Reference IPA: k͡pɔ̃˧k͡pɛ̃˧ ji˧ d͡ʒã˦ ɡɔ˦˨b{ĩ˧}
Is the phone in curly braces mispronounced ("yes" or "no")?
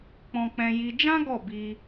yes